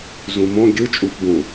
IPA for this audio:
z ũ m õ ɡʲ ɯ t͡ʃʼ u f b ũ

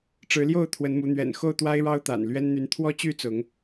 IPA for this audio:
ʈ͡ʂ ɻ̩˨˦ l j o˥˨ ʊ̯ t̪ʰ w ə˨˦ n m u˨˦ n̪ ɥ ɛ̰˨˩ n x o˥˨ ʊ̯ t̪ w a˦ ɪ̯ ɻ ɑ˦ ʊ̯ t̪ a̰˨˩ n l ɥ ɛ˦ n n̪ y˨˦ n t̪ʰ w ɔ˦ t͡ɕ y˦ t͡s ʊ˨˦ ŋ

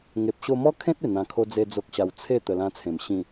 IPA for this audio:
ŋ e˨ p̚ ɕ o˧ m ɔ˦ kʰ ẽ˦ t̚ e˨˩ n̪ ã˧ kʰ o˦ d͡z e˦ d͡z o˦ k̚ ɕ a˧ w t͡sʰ e˥˧ t̪ ə˧ l ã˦ t͡sʰ ẽ˨˩ m ɕ ĩ˨˩

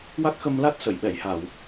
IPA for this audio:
w a˦˥ k̚ x ə˧ m l a˦˥ t̚ s ə˨˩˨ j ɓ ɛ˨˩˨ j h a˨˩˨ w

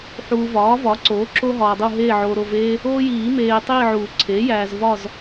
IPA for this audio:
ħ uː˨ v ɒː˩˥ v ɒ˩˥ ǀ oː˩˥ ǁ o˦ ɦ ɒː˨ dˤ u˦˨ ɦ eː˦˨ ʕ oː˨ ɾ o˦˨ v eː˦ | oː˦ j iː˨˩˦ m eː˨ tˤ iː˦˨ ʕ uː˨˩˦ ǀʰ eː˩˥ j æː˨ z v ɒ˦˨ z

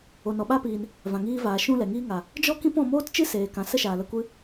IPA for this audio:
o˨ n ɔ˨ ɓ a˦ p iː˨ n | v ã˨ ŋ iː˧ v aː˨ ʃ ũ˦ l ɛ˨ ŋ iː˦ ŋ a˨ | d͡ʒ ɔ˦ k ĩ˦ p ɔ̃˧ m oː˦ t t͡ʃ ɨ˦ s eː˨ k ã˨ s ə˦ ʃ aː˨ l ə˧ kʷ ɨ˦

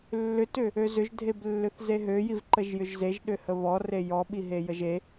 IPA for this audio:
lː ʏ t ʏ | ø z ʏ ʒ dʱ e b lː ʏ θ z e ɦ ø j i v ǃ ə ʒ j ʏ ʒ z e ʒ ɗ ʏ h ə β ɔ r e j ɔ ɓ i ɦ e j ə ʒ e

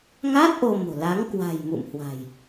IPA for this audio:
ŋ a˦˥ t̚ ʔ o˧ m o̤˨˩ l a˨˦ ŋ k w a̤˨˩ j m ṵ˧˨ m h w a̤˨˩ j

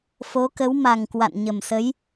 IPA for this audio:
f o˨˦ k ə˨˦ w m a˨˩ ŋ k w a̰˧˨ n ɲ ə˨˩ m s ə˨˦ j

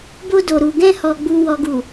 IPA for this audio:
b o˧ d o˨ ɾ u˨ ɡ ɛ̃˧ h ɔ˨ ɡ͡b u˨ w ɔ˨ ɡ u˨

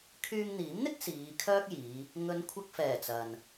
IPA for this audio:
kʰ yː˧ ŋ n̪ iː˨˥ m n̪ ɪ˥ k̚ s iː˨˧ kʰ œː˥ k̚ j iː˨˧ | ŋ ɵ˨˧ n kʷʰ ɐ˧ k̚ f ɛː˨˩ t͡s ɐ˨ n

